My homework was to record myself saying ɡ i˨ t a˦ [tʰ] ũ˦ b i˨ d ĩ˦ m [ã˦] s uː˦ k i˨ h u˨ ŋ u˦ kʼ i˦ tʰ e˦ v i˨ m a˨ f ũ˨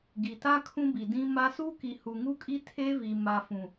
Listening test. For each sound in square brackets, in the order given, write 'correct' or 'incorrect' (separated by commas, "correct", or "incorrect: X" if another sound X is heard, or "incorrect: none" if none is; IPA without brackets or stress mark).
incorrect: kʰ, incorrect: a˦